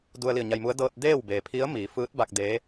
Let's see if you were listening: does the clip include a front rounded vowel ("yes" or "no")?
no